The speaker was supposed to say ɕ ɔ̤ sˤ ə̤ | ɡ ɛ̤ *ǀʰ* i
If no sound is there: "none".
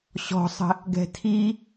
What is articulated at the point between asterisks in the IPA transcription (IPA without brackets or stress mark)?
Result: tʰ